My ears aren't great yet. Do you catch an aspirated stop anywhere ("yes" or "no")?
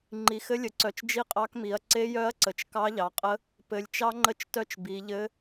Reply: no